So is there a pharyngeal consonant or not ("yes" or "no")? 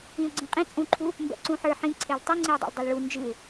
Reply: yes